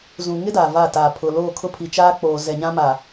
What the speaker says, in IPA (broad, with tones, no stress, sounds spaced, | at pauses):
z ũ˨ ŋ ɪ˦ d aː˨ v a˦˨ t aː˨ pʰ ʊ˨ l oː˦˨ kʰ ʊ˦ pʰ i˨ t͡ʃ aː˦ k͡p oː˨ z ɛ˨ ɲ ã˦ m a˨